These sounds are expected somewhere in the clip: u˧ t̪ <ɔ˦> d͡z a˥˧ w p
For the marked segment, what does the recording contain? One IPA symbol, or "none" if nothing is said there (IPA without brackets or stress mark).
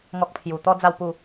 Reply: ɔ˦